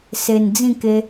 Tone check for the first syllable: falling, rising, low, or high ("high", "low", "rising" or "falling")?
low